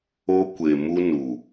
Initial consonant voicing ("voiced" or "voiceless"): voiceless